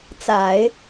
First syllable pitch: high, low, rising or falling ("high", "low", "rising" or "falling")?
low